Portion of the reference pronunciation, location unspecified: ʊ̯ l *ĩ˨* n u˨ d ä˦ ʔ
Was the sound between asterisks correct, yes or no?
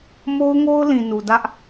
yes